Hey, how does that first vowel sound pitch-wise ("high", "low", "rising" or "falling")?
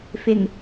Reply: low